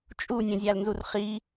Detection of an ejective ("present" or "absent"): present